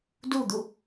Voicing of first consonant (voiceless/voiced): voiced